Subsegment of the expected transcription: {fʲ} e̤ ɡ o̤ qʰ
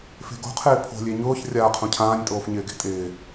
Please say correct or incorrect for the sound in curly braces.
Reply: incorrect